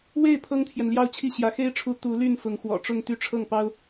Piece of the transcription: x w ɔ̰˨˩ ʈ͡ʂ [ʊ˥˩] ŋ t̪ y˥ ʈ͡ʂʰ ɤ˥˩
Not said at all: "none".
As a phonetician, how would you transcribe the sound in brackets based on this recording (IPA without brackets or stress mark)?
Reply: ʊ˥˩